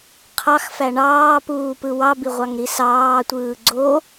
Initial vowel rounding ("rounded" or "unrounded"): unrounded